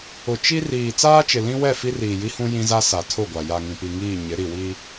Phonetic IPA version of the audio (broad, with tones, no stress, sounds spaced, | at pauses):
ʊ˨ t͡ʃ i˦ r iː˨ t͡s aː˦ t͡ʃ ɪ˨ l ĩ˦ w ɛ˦˨ f i˦ r iː˨ j i˦ h ũ˦ j ĩ˦ z a˦ s a˨ tʰ ʊ˦˨ ɡʷ a˨ j a˨ ŋ ĩ˨ p i˨ ŋ iː˦˨ ɲ ɪ˨˦ ɾ i˨ w i˦